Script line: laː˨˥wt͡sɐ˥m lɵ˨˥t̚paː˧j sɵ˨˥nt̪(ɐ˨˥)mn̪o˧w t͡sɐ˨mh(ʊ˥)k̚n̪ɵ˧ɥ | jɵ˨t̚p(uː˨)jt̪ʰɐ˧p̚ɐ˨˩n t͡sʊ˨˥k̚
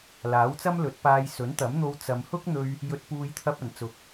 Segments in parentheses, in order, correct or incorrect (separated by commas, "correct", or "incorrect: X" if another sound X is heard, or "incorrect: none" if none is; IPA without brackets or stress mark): correct, correct, correct